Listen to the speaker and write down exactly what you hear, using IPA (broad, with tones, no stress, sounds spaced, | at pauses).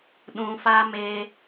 ɗ ũ˧ f a˦ m eː˦